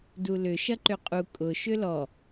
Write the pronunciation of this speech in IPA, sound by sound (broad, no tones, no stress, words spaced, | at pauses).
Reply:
dulʏ ʃɐǃʏqʼu kʼʊ ʃʏlɔ